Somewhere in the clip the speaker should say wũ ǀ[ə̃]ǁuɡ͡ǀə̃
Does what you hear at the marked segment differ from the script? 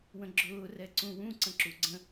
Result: no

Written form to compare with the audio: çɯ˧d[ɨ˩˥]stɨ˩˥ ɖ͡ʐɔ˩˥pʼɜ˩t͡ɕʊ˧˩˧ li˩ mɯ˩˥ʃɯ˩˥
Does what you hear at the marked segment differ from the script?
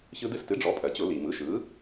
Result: yes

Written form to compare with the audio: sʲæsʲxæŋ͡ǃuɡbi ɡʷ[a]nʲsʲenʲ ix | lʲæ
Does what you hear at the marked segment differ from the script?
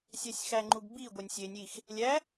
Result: yes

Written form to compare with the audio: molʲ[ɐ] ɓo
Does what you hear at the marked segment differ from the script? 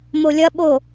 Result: no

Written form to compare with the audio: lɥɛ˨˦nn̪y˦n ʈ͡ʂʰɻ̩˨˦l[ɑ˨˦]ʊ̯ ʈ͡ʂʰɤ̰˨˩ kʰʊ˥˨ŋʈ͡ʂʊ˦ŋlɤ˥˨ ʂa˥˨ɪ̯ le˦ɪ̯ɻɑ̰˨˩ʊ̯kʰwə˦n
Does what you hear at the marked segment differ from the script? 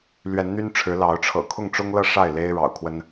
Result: no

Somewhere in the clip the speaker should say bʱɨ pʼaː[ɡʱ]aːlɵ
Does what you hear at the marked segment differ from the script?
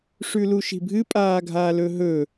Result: no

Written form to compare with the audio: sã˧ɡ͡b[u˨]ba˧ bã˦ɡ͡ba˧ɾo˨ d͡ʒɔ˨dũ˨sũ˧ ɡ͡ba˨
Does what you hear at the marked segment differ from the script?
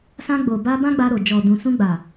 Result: yes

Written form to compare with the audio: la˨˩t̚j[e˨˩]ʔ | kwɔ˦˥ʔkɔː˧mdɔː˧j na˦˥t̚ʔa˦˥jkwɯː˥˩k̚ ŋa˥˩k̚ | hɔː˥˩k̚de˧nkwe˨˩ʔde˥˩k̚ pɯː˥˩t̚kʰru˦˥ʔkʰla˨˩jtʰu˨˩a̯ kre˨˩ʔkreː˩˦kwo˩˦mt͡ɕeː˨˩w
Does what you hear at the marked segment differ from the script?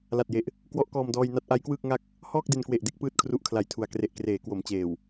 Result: no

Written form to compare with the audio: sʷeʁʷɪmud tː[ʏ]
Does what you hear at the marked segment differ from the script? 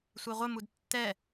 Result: yes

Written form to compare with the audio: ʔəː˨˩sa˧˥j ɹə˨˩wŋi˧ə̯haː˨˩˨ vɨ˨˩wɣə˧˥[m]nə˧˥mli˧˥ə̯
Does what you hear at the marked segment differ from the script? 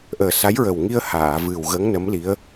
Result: yes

